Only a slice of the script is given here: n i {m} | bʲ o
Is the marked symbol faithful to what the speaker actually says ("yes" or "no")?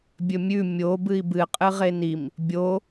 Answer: yes